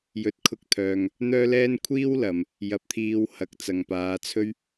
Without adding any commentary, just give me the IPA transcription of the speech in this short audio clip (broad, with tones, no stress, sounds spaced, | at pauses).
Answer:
j ɵ˨ t̚ kʰ ʊ˧ k̚ t̪ʰ œː˨ ŋ | n̪ œː˥ l ɛː˥ n kʷʰ iː˥ w l ɐ˨ m | j ɐ˧ p̚ t̪ʰ iː˧ w h ɐ˨˥ k̚ t͡s ɐ˨ ŋ p aː˨˧ t͡sʰ ɵ˥ ɥ